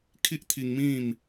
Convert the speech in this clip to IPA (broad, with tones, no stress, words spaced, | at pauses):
kʰi˦ʔt̪ʰi˧ŋmĩ˥˧m